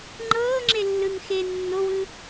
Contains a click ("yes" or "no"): yes